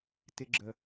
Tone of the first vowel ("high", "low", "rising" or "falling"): high